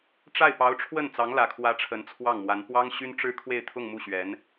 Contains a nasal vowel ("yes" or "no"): no